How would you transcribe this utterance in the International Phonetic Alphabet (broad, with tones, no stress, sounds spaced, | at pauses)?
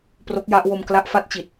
p r o˦˥ k̚ j a˦˥ ʔ w o˧ m k l a˦˥ ʔ f a˦˥ t̚ t͡ɕ i˨˩ t̚